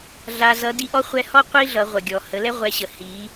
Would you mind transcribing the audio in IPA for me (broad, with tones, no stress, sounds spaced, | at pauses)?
ɮ a˧ z ʌ˧˥ d i˧˥ ʔ ɔ˧˥ χʷ ɛ˧˥ h ɔ˥ qʷ i˥ ɮ ʌ˩˧ ʁʷ ʌ˩ ɡʲ ɔ˩ h ə˩˧ l ɛ˥ ʁʷ ɛ˧ ɕ ə˩˧ h i˩˧